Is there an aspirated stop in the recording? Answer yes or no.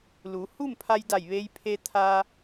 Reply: yes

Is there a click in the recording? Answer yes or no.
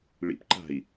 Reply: yes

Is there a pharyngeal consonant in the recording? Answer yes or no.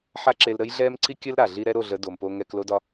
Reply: yes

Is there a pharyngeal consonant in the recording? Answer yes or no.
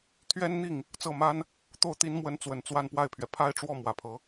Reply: no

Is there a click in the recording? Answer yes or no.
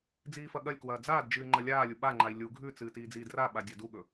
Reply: yes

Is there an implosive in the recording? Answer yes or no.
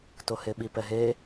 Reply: yes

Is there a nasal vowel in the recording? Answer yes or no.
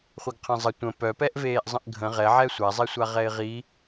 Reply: yes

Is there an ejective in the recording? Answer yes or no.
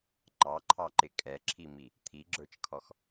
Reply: yes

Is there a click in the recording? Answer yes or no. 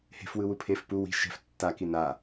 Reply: no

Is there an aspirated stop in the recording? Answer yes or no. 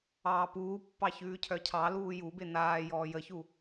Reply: yes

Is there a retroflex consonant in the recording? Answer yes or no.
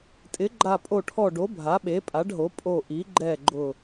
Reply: yes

